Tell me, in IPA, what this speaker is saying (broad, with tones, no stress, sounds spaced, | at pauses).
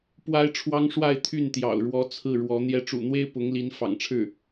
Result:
p w a˥ ɪ̯ ʈ͡ʂʰ w ɑ˥ ŋ ʂ w a˥˧ ɪ̯ t̪ʰ y˥˩ n t̪ j ɑ̰˨˩ ʊ̯ ɻ w ɔ˧˥ t͡sʰ ɹ̩˥˩ ɻ w ɔ˧˥ n̪ j ɛ˧˥ ʈ͡ʂ ṵ˨˩ n̪ w e˥ ɪ̯ p ʊ˧˥ ŋ l i˧˥ n f ɑ̰˨˩ ŋ ʈ͡ʂʰ ɻ̩˥˩